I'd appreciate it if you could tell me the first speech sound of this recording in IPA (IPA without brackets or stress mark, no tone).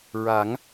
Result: ɹ